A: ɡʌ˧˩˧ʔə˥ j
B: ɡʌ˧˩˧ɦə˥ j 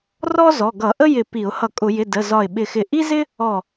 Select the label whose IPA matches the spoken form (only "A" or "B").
A